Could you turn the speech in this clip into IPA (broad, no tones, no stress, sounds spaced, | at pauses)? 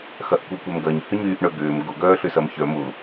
x ɐ ʔ kʷ œ kʷ ɛ m ɡ ɐ ɲ h ʏ ɲ yː ʔ ɳ œ ɡ ʏː m ɡ ʊ ɡ œː ɬ ʏ s ɐ m ç œ m ʊ